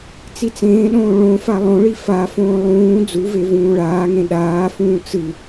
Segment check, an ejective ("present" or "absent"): absent